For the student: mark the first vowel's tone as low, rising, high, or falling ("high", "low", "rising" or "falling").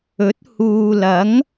rising